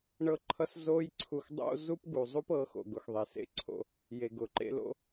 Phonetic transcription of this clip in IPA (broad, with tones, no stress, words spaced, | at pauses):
ɳɤ˦ǃʰʌ˦s zo˦j ǀʰu˧xdˤo̰˦ zu˦pɡu˨zˤu˦p ɤ˨˦xo̰˨ɡʊ˨x ðˤe˨sḛ˦ǀʰo̰˧ | je˨ɡʊ˨ǃḛ˦lo̰˦